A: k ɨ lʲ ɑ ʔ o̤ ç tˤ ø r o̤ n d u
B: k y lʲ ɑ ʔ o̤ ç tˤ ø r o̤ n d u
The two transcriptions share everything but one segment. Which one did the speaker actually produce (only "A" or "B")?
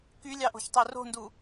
B